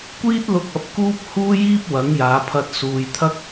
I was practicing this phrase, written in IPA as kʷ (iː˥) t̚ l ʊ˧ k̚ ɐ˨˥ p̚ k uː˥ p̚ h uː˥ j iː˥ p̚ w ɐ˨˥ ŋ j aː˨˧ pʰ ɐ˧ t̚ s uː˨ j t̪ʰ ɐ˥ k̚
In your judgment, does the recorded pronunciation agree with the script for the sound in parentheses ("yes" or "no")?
yes